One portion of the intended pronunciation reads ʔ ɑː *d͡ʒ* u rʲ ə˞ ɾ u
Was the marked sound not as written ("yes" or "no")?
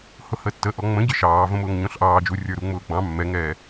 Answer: no